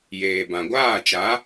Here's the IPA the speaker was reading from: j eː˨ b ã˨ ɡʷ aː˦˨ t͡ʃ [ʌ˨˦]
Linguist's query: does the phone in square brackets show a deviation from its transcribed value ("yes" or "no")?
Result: yes